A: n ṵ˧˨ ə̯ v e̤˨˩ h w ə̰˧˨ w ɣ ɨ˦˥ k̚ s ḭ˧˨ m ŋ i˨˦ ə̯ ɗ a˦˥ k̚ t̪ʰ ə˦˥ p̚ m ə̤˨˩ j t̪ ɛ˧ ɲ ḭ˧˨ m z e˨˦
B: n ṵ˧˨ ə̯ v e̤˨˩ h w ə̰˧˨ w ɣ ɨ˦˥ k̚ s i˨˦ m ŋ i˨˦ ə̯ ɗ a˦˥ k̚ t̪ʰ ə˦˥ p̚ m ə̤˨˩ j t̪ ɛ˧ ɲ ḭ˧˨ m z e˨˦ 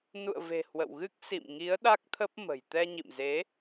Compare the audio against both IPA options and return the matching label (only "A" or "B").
A